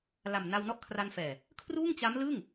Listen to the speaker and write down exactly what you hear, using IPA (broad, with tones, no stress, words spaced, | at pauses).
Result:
la˨˩m na˧wnɔ˦˥ʔkʰra˧nfɛː˨˩ | kʰruː˥˩ŋt͡ɕa˦˥m lɯ˥˩ŋ